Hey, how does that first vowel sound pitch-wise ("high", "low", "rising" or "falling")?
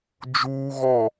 high